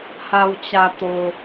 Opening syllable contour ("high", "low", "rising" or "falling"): low